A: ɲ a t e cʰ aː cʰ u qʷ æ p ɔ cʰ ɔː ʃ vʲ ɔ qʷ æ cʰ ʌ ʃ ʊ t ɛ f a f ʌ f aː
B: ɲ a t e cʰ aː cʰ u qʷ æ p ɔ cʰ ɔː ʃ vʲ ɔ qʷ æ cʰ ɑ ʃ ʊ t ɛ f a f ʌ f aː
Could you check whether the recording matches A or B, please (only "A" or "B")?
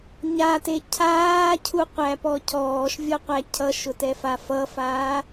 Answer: A